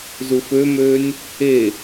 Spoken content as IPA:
z u f ø m øː nʲ | e

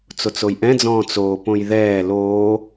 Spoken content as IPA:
t͡s o t͡s o j ʔ ɛ̃ d͡z ɔ̃ː t͡s oː p õ j ð ɛː l oː

